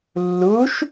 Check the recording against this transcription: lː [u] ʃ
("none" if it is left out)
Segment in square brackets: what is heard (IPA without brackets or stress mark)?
u